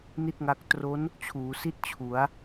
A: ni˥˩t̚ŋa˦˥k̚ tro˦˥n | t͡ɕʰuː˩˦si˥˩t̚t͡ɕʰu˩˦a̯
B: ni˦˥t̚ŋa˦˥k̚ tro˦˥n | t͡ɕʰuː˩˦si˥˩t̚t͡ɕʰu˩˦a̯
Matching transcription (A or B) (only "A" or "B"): A